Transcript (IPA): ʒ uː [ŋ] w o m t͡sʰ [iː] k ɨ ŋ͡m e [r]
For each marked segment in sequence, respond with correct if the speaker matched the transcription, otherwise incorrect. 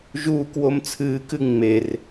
incorrect: k, incorrect: ɨː, correct

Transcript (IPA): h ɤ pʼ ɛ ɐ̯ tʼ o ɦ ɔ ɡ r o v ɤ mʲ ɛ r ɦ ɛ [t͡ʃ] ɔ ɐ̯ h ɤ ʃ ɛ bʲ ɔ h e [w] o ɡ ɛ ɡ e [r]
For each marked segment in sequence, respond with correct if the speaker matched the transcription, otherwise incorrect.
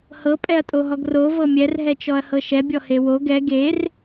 correct, correct, correct

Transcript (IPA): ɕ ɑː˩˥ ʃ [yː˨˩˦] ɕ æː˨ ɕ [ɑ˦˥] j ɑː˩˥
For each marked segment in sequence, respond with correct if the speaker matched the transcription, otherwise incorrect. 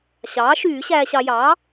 correct, incorrect: ɑ˨

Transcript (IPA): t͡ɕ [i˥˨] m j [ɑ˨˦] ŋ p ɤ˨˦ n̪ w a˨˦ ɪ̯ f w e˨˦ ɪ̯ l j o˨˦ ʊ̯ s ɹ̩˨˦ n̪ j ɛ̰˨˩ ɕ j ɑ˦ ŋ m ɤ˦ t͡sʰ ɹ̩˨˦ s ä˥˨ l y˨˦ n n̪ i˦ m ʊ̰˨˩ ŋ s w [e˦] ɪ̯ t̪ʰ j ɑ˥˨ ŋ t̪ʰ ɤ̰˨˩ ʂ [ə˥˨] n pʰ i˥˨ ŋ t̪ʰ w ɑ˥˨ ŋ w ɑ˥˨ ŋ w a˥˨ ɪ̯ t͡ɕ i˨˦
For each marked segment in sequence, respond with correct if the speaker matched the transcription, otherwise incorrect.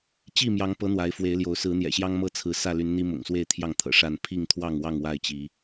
correct, correct, incorrect: e˥˨, incorrect: a˥˨

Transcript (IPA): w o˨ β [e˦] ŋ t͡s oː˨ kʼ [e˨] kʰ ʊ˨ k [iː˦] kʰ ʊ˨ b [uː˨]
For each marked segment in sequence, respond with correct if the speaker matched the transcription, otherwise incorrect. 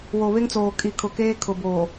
correct, incorrect: i˨, incorrect: eː˦, incorrect: oː˨

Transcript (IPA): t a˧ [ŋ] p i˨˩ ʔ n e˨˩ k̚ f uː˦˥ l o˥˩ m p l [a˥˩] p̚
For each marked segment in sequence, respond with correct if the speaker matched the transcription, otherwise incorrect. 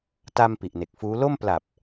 incorrect: m, incorrect: a˨˩

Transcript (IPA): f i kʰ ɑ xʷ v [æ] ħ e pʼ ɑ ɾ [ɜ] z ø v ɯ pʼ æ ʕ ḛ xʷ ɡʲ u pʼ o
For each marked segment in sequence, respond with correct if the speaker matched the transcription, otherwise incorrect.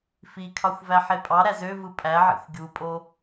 correct, incorrect: æ

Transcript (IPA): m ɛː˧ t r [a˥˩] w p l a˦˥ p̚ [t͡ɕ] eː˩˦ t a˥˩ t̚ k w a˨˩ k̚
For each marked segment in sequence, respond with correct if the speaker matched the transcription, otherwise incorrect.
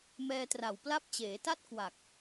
incorrect: a˨˩, correct

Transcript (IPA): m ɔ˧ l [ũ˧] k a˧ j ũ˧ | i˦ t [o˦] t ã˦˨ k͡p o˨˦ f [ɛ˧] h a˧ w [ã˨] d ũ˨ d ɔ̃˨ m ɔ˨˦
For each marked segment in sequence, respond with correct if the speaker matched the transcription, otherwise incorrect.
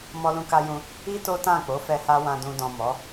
correct, correct, correct, correct

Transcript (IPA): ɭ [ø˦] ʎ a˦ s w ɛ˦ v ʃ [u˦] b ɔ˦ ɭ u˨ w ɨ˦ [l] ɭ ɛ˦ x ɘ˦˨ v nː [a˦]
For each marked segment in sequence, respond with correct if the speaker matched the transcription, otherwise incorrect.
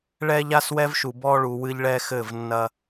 incorrect: ɛ˦, incorrect: u˨, incorrect: ʎ, incorrect: ɐ˦

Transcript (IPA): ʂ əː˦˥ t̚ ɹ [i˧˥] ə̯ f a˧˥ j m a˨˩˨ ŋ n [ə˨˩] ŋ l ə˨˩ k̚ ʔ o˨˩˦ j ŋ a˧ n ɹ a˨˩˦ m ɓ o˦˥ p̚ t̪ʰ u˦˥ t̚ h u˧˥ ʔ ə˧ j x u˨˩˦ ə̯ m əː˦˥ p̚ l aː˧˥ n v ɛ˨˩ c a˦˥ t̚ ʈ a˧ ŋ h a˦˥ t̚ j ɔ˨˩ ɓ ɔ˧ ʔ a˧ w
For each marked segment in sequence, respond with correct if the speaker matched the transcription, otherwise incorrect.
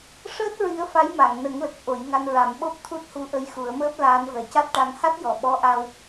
correct, incorrect: ə˨˩˦

